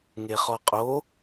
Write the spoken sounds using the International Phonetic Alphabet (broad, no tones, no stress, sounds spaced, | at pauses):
ŋ e χ ɔ qʼ o